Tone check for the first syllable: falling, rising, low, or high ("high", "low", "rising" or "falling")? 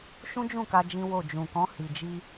high